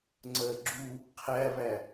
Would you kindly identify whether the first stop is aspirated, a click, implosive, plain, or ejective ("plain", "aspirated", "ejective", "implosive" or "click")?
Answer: click